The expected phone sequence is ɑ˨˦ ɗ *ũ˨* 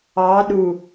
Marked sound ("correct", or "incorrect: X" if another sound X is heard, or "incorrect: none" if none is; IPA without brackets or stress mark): incorrect: u˨